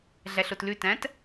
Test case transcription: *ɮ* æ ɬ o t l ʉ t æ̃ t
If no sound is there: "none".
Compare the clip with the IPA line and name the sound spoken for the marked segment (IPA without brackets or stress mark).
ɮ